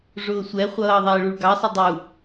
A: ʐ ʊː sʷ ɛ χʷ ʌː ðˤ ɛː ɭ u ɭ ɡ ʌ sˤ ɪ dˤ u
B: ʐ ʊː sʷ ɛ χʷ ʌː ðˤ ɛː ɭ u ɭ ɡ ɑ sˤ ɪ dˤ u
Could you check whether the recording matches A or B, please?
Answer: B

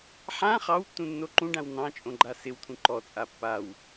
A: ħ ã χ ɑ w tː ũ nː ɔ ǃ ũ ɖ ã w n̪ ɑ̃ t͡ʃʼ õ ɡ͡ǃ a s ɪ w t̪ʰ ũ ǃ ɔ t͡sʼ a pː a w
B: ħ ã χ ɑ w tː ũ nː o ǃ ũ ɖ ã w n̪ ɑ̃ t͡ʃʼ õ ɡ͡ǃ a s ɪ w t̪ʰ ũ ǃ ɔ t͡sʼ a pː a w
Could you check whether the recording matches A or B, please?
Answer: B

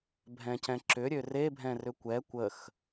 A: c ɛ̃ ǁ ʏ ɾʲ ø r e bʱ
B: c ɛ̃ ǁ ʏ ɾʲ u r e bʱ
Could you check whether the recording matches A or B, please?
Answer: A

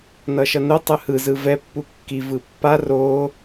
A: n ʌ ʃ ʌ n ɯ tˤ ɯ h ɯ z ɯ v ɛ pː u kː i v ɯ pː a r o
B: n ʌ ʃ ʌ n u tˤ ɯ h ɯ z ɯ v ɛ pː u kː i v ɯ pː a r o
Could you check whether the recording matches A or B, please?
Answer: B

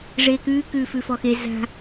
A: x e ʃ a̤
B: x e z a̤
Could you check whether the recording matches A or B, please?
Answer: B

